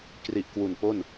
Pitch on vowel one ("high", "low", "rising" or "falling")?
low